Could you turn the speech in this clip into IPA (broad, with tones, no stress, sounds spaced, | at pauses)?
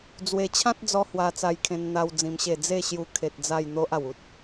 d͡z w e˧ t͡ɕʰ ã˦ t̚ d͡z ɔ˧ h w a˧ t͡s a˧ j kʰ ẽ˧ n n̪ a˦ w d͡z ĩ˧ m ɕ e˥˧ d͡z e˥˧ ɕ j u˧ kʰ e˨ t̚ d͡z a˥˧ j n̪ o˦ ʔ a˨˩ w u˦ t̚